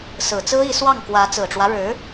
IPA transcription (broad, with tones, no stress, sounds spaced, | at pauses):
s ɹ̩˨˩ t͡s ɹ̩˥ i˧˥ s w ɑ˥˩ ŋ k w ä˧˥ t͡s ɹ̩˨˩ ʈ͡ʂ w ä˦ ɻ ɻ̩˧˥